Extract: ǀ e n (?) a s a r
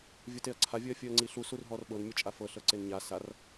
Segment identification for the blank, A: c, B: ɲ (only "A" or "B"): B